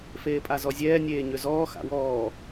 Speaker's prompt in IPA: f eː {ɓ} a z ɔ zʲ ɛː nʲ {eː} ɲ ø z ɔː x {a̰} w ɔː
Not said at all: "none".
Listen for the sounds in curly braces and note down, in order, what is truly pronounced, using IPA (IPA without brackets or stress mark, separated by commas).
pʼ, eː, a̰